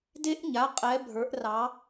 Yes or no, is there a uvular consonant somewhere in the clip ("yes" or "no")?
yes